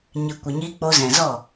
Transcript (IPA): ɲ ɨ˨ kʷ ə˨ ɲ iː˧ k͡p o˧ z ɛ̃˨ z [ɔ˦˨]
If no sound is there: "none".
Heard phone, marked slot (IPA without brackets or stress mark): ɔ˦˨